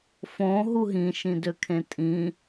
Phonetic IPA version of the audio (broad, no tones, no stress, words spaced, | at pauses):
fõ ɦuɦĩ ʃĩdøkʰẽtʼĩ